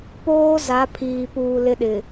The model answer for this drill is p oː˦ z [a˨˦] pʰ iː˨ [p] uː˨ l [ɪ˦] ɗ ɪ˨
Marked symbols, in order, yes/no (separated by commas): yes, yes, yes